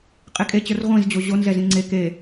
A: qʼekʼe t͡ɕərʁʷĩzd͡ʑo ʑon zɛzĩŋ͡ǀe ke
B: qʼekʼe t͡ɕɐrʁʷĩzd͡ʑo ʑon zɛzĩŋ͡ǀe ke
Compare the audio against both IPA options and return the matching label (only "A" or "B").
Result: A